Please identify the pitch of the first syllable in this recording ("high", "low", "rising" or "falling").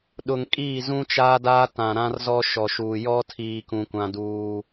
low